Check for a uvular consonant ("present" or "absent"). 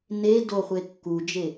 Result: present